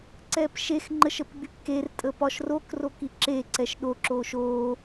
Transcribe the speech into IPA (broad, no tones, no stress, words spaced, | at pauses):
ǀɛːpʃex ŋ͡ǃəʃəpɡ͡bypker tʼəpɒʃrok rokiǁe ǀɛʃɗo ǁoːʃoː